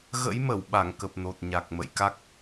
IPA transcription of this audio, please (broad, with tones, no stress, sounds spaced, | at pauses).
ɣ ə̰˧˥ j m ə˧˩ w ɓ a˧˩ ŋ k ə˨˩ p̚ n o˨˩ t̚ ɲ a˨˩ k̚ m ə̰˧˨ j k a˦˥ k̚